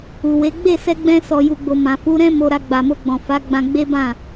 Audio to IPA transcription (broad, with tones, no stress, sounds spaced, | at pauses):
u˨ w e˨˦ ɡ͡b e˦˨ s ɛ˧ ɡ͡b ɛ̃˧ s ɔ˨ j u˨ ɡ͡b o˨ m ã˨ f u˨˦ ɾ ɛ̃˦ m o˧ ɾ a˧ ɡ͡b a˨ m o˧ ɡ͡b ɔ̃˨ f a˨˦ ɡ͡b ã˧ ɡ͡b e˦ b ã˦˨